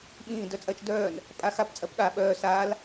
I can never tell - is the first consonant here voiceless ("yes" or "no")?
no